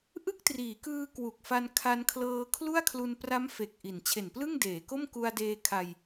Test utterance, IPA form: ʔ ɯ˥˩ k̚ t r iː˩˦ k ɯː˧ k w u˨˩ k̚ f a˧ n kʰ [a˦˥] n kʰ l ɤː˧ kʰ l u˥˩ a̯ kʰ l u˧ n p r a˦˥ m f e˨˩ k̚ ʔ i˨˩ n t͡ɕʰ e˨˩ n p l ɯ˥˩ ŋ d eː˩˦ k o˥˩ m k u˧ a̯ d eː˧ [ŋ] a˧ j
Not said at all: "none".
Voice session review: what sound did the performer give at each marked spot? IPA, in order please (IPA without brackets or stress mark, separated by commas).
a˧, kʰ